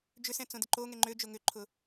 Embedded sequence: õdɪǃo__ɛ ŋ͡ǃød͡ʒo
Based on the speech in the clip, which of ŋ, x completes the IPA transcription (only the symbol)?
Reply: ŋ